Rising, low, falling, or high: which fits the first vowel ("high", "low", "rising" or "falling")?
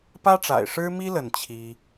high